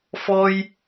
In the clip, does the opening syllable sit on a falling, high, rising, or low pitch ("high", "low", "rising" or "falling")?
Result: high